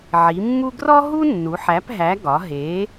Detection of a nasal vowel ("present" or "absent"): absent